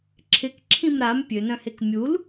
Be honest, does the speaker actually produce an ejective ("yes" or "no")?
no